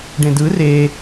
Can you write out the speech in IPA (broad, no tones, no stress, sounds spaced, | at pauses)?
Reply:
ɖ ẽ d ɯ r e